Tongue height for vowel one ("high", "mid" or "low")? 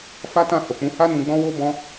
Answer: low